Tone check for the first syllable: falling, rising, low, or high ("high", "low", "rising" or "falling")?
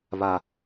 low